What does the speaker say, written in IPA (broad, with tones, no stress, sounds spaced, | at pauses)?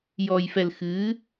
j ɔ˨ j f ɛ˨ l x ɨ˨˦